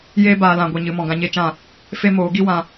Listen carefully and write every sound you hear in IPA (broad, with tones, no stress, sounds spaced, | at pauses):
j eː˦ b aː˧ l ã˧ ɡʷ i˧ ɲ ɨ˨˦ m ɔ̃˨ ɡ ã˧ ɲ e˦˨ t͡ʃ ã˦˨ | f e˦ m oː˨˦ ɡ i˦ w ã˧